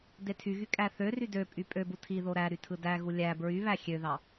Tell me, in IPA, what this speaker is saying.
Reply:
d e tʰ y ɣ y kʼ æ θ ø r y d ø pʼ y pʼ ø b u tʰ i ð o ɾ æ ɾ y tʰ ɯ d æ ɣ u lʲ æ b ɹ y β æ xʲ ø ð ɑ

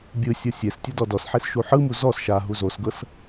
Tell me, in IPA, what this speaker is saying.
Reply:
bʲ ɯ sʲ ɔ sʲ e s tʲ ɯ d ɔ d ɔ s ħ e s ʃ u ħ ɯ m u z ɔ s ʃ a ɦ u z o s ɡ ɤ s

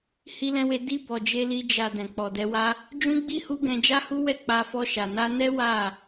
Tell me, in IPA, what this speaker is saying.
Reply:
h i˧ l ɛ̃˧ w e˧ d i˧ b ɔ˨ d͡ʒ e˧ l i˧ d͡ʒ a˨ d ɛ̃˨ k͡p ɔ˨ d ɛ˧ w a˦ | d͡ʒ ũ˦ ɡ͡b i˦ h u˦ ɡ ɛ̃˧ d͡ʒ a˦ h u˦ w ɛ˦˨ k͡p a˧ f ɔ˧ ʃ a˨ n a˧ n ɛ˦ w a˦˨

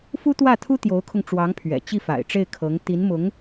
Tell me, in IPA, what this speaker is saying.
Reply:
f u˥ t̪ w ä˥˩ t̪ʰ u˥ t̪ j o˧˥ ʊ̯ kʰ ʊ˧ ŋ ʈ͡ʂ w ɑ˧˥ ŋ pʰ ɥ ɛ̰˨˩ t͡ɕ i˥˩ f a̰˨˩ ɪ̯ ʈ͡ʂ e˥˩ ɪ̯ kʰ ɤ˧˥ ŋ t̪ i˧˥ n m ʊ˧˥ ŋ

